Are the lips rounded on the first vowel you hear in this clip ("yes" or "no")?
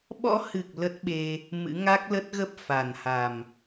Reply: yes